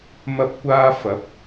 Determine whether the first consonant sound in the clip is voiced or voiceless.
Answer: voiced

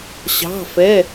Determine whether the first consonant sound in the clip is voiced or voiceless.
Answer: voiceless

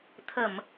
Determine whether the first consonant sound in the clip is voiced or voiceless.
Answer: voiceless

